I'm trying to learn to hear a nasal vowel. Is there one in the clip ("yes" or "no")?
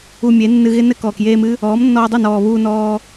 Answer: no